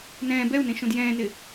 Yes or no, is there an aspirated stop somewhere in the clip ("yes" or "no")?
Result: no